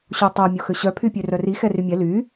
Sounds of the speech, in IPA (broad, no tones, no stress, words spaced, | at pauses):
ɕotˤo mʲoxøɕœ pʰypʲørœri xɛrymʲɛ ly